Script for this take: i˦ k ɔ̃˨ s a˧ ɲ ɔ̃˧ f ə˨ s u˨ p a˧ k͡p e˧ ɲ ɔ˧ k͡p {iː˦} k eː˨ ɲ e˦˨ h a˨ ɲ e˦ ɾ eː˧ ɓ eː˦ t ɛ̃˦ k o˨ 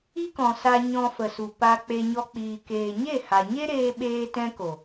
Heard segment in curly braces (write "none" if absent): iː˨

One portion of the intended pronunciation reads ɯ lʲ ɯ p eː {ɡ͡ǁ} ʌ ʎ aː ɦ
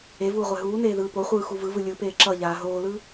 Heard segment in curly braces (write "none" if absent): ǁ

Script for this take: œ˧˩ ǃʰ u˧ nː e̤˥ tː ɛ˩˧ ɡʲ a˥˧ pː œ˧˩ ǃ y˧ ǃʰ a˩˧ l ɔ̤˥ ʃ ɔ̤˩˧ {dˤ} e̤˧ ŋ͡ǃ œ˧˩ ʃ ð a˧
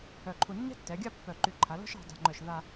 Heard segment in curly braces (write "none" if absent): dˤ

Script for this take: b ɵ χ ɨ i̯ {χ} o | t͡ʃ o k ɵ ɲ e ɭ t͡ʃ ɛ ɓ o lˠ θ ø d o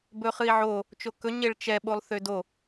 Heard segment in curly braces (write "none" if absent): ʕ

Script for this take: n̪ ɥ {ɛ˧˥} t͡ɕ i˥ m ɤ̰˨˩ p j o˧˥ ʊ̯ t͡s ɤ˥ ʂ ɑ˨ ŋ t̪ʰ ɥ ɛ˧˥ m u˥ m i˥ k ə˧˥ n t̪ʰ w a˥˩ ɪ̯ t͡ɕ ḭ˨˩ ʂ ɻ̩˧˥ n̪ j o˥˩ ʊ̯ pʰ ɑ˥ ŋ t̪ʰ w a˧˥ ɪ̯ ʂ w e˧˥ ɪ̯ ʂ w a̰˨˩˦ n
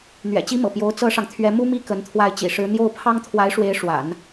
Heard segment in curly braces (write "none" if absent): ɛ̰˨˩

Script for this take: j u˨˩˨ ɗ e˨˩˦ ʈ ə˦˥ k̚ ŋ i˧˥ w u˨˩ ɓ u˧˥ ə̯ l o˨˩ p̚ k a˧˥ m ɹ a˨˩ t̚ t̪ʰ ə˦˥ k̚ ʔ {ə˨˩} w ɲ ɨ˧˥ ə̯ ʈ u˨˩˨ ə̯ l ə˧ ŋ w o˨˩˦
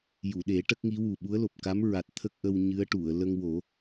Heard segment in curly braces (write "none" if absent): ə˧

